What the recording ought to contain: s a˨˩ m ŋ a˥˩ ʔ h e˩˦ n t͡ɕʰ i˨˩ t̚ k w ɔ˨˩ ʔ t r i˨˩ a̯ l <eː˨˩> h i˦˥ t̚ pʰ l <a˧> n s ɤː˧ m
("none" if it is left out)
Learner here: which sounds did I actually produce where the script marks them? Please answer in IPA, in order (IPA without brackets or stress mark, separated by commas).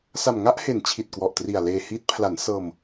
eː˧, a˩˦